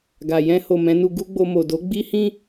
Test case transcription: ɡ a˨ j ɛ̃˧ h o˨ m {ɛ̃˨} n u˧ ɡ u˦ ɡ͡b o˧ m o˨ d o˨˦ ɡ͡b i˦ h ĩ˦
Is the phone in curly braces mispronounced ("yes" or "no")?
yes